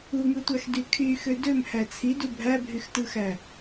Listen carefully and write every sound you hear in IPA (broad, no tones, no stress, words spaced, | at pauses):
uŋɯtʷæxdy kʰyxø dømhæ t͡sʰidu bʱæbʱyxtɯxæ